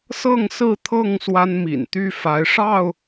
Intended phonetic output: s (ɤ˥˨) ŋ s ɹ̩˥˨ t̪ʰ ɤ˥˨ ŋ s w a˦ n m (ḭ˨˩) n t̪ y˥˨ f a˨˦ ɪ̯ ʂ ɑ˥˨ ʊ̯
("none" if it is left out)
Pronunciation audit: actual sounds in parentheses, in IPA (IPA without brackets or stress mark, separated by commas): ɤ˥˨, ḭ˨˩